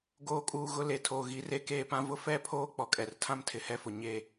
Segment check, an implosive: absent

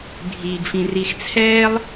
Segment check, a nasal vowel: present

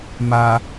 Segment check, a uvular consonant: absent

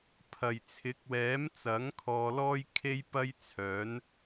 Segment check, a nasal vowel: absent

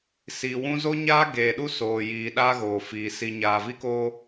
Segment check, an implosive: present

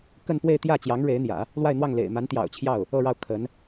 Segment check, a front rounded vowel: absent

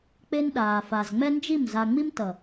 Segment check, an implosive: present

